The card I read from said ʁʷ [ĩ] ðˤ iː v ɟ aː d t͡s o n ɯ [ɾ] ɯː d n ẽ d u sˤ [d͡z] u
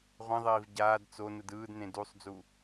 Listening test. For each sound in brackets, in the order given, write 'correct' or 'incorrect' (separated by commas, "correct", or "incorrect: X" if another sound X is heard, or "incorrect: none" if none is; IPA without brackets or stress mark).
correct, incorrect: d, correct